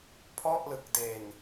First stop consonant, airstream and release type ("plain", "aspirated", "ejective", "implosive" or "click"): aspirated